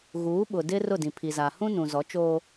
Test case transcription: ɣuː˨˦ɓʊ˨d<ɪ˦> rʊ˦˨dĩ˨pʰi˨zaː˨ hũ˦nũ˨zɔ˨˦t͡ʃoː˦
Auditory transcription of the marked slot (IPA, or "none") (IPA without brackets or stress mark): ɪ˦